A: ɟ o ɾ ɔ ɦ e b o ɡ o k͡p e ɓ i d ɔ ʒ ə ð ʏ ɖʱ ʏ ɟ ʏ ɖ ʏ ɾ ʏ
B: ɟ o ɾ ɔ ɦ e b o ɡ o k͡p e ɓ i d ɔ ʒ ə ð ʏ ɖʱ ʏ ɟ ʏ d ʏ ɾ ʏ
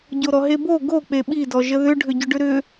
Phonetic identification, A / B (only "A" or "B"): A